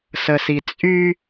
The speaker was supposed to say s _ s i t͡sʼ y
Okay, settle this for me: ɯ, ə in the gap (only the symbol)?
ə